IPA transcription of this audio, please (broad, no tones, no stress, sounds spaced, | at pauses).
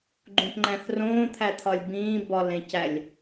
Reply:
ɡ͡ǃ ũ p ŋ͡ǃ æ̃ θ r õː t̪ʰ æ t̪ʰ ɒ lʲ b ĩː b ɒ l ẽ c æ lʲ